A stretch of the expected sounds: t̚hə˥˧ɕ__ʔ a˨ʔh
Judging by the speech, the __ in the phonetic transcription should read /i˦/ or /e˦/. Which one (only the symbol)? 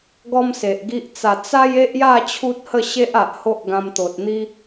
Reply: e˦